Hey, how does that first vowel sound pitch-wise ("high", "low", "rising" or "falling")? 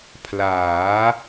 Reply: rising